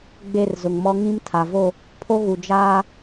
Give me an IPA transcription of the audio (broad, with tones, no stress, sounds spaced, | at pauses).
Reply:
ɡ͡b e˦˨ r z ʊ˨ ŋ m ɔ˦ ŋ ĩ˦ m tʰ a˨ v o˦˨ | pʰ o˦ ɣ u˨ d͡ʒ aː˦